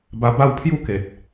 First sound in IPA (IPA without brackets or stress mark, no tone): b